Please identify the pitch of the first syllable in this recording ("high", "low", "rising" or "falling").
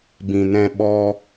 low